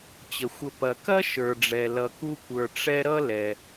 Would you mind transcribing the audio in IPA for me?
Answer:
t͡ɕ ə˩ xʷ ə˨ p ɐ˩ k ɐ˥ ʃ ə˞˩ ɖ͡ʐ ɛ˩ l ʌ˨ k u˥ kʷ ə˞˨ ʈ͡ʂ ɛ˦ ɾ ʌ˥ l ɛ˩

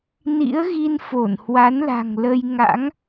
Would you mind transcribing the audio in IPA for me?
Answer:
n ḭ˧˥ ə̯ ɣ i˧ n f o˧˩ n h w a˨˦ n l a̤˨˩ ŋ l ə˧ j ŋ a̰˧˥ ŋ

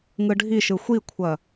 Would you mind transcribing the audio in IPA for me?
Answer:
ŋ ɯ ɖʱ i ʃ ɯ xʷ i kʷʰ ɐ

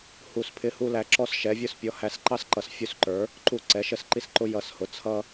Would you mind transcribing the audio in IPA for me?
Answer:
h u˧˩ s pʰ ɪ˦ h u˦ l æ˩˥ ǁ ɔ˦ s ʃ ɛ˩˥ vʲ ʊ˦ s pʲ ɔ˩˥ h æ˩˥ s ǃ ɑ˦ s ǃ ʌ˩˥ s fʲ u˧˩ s ǃ ə˞˩˥ | ǃ u˧˩ ǀ ɛ˩˥ ʃ ə˧˩ s ǃ i˦ s ǃ ʊ˦ j ʌ˧˩ s h ʊ˩˥ t͡sʰ ʌ˦

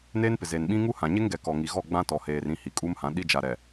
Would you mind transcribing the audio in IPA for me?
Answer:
n eː˦ n p ɪ˨ z eː˨ n ɓ ĩ˦ ŋ u˦ h ã˨ ɲ e˦ ŋ ɡ ɛ˨ k ɔ˨ ŋ i˨ ɣ ɔ˦˨ ɡ͡b ã˦ t ɔ˨ h eː˨ r ĩ˦˨ h i˨ kʼ u˦ m h ã˨˦ ɗ i˦ d͡ʒ a˨ ɾ ɛ˨

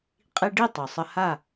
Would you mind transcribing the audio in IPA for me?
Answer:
qʼ i˧ ɖ i˥˩ tˤ u˩ sˤ ə˧ h a˥˩

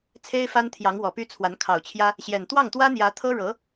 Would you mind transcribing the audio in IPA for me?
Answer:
t͡sʰ e˥ ɪ̯ f a˥ n t̪ʰ j ɑ˧˥ ŋ w ɔ˨˩ p y˥ t͡sʰ w a˧˥ n kʰ ɑ˨˩ ʊ̯ t͡ɕʰ j ä˥ | ɕ j ɛ˨˩ n t̪ w ɑ˥˩ ŋ t̪ w ä˥ n̪ j ä˧˥ t̪ʰ ɤ˥ ɻ ɤ˧˥

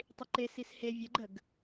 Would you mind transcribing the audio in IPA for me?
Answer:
tˤ i ǃ e s i s h e vʲ ə ɡ͡ǃ ə ɡ

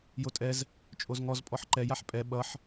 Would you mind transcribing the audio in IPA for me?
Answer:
j o tʼ ɛ z | t͡ʃʼ o z ŋ ɔ z pʼ ɔ ħ ǃ ɛ j a ħ pʼ ɛ ɓ ʌ ħ

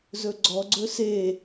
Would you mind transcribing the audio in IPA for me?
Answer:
z ɵ ɡ͡ǀ ɔ ɡ͡ǀ ɵ s e

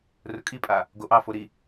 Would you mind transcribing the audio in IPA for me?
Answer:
r ʊ kʼ i pʼ a | ɡ o ʔ ɑ f o ɾ i

